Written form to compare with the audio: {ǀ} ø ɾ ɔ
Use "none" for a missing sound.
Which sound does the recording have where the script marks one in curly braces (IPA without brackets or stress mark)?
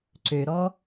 ǀ